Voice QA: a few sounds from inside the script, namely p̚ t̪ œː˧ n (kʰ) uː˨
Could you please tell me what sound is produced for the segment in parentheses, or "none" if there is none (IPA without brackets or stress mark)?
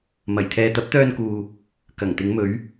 k